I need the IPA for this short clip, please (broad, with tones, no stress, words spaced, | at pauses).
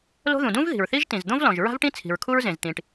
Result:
lo̤˥ ðũ˩dũ˥v ði̤˩ɹθi˥ʒ tĩ˩zd̪õ˥vlɔ̃˩ʒ ɹa̤˥vʈĩ˥ t͡sʰi̤˩ɹkʰu˥ɹ zẽ˩z t̪ĩ˩ʈ